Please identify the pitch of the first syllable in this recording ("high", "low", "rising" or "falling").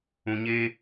low